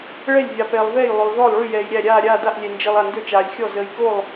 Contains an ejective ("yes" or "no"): no